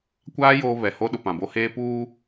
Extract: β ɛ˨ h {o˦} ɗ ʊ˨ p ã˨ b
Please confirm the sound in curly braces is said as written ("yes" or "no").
yes